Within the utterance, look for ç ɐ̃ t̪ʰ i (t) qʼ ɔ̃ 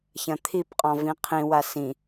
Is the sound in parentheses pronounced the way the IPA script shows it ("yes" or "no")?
no